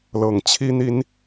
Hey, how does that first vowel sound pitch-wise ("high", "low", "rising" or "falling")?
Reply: low